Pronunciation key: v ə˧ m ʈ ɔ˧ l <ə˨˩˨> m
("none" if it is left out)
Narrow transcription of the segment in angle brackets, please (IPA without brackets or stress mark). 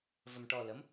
ə˧˥